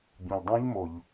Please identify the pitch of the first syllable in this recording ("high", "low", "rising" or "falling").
low